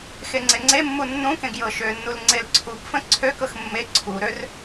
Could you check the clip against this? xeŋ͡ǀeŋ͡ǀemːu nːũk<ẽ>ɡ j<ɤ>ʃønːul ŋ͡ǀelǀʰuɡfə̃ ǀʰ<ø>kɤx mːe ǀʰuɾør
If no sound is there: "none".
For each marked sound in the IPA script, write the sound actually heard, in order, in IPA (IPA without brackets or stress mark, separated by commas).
ẽ, ɤ, ø